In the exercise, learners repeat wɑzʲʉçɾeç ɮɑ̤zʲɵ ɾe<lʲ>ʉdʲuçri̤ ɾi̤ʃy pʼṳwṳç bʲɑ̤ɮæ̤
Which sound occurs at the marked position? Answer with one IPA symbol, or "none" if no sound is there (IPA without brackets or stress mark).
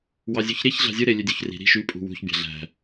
lʲ